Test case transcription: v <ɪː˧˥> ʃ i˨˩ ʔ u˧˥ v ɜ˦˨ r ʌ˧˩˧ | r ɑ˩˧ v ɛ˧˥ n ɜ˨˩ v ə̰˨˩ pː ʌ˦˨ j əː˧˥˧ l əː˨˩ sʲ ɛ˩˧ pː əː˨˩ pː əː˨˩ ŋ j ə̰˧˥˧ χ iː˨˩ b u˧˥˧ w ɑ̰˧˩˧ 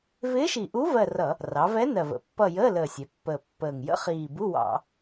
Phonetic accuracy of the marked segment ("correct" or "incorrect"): correct